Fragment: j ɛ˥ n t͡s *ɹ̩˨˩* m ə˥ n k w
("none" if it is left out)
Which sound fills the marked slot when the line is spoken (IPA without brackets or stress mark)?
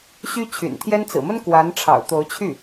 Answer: ɹ̩˨˩